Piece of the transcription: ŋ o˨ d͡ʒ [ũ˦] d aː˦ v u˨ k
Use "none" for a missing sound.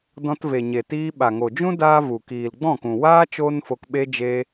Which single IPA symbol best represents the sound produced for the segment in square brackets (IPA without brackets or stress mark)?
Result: ũ˦